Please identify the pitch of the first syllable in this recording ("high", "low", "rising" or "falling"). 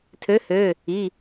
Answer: rising